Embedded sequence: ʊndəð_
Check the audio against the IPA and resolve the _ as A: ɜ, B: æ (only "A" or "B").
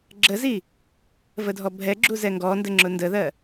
A